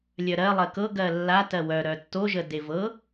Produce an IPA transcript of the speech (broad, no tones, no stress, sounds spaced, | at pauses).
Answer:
lʲ œ ɾ ɜ lˠ ɜ k ɤ ɡ ɜ lː a t ɜ w œ ɾ œ tː o ʒ ə d e v ɤ